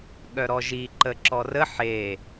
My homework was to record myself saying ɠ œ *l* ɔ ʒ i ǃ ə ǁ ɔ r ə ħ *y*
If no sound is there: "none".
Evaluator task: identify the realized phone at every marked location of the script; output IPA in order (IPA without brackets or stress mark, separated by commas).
ɾ, e